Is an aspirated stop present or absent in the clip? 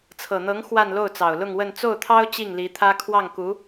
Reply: present